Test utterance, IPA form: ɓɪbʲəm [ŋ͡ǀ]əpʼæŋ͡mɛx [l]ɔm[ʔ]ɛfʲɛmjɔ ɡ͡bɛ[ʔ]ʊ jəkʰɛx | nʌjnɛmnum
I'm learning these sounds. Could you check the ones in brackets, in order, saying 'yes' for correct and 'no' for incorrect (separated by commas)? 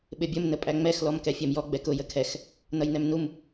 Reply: no, yes, no, no